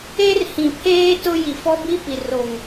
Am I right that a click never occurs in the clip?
yes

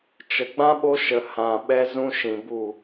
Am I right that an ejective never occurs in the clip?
yes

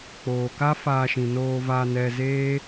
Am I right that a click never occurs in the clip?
yes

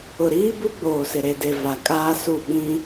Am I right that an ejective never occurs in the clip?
no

